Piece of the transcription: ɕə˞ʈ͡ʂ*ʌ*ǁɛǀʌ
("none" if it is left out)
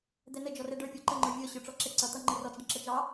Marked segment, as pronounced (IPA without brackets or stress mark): ɔ